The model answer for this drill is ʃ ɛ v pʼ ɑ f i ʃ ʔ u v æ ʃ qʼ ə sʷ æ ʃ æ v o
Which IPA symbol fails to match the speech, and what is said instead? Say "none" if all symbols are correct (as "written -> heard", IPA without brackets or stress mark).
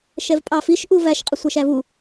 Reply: o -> u